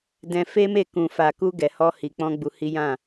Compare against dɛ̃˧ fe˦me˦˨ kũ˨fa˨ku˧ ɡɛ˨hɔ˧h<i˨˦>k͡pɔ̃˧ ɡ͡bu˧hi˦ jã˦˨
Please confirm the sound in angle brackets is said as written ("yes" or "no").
no